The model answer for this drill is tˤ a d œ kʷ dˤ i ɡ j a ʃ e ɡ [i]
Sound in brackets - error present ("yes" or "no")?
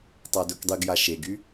yes